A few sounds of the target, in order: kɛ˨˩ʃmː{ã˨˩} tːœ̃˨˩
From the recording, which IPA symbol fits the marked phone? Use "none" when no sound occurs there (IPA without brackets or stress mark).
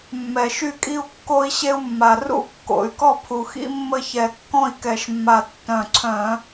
a˨˩